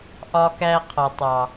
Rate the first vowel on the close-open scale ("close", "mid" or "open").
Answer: open